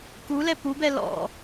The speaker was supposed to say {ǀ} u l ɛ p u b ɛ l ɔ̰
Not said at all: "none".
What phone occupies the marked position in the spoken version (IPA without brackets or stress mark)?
k